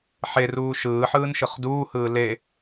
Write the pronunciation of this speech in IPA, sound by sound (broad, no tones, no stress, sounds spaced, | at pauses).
ħ e r uː ʃ ɯː ħ ɯː n ʃ ɯ χ d uː h ɯː l e